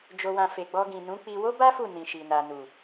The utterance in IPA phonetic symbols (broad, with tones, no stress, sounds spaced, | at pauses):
d͡ʒ o˨ w ã˨ f e˨ ɡ͡b ɔ˧ ɡ ĩ˨ n ũ˨˦ k͡p i˧ w o˦ b a˦ f u˦˨ n ĩ˨ ʃ i˨ n a˨ n u˨